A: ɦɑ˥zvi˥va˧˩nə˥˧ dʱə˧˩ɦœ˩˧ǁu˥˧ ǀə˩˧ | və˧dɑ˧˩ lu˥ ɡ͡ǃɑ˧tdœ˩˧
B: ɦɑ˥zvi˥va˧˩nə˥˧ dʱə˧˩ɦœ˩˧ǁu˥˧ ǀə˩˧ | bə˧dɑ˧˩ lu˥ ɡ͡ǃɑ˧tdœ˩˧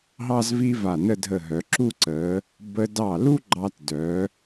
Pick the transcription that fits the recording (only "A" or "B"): B